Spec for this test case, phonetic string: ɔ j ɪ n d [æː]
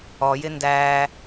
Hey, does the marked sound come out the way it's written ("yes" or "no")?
yes